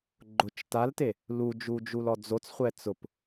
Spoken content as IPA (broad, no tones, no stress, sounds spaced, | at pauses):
ɡ͡ǃ ʊ t͡ʃ t a l t e | l u d͡ʒ u d͡ʒ u l ɔ d͡z o t͡s χʷ ɛ t͡s ʊ p